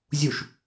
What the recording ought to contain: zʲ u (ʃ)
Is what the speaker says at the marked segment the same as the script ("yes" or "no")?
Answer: yes